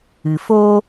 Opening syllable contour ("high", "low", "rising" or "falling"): low